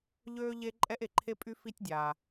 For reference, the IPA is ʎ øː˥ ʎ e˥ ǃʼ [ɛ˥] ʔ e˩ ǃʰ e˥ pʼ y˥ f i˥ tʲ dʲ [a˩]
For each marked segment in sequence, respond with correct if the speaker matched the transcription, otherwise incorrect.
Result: correct, incorrect: aː˩

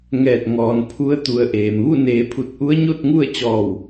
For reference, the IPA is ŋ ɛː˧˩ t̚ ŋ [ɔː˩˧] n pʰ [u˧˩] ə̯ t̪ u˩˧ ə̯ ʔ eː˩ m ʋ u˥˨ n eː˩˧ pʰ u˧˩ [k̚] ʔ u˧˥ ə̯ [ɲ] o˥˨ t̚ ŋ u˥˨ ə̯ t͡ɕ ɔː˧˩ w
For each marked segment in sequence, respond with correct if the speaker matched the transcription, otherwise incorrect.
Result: correct, incorrect: u˧˥, incorrect: t̚, correct

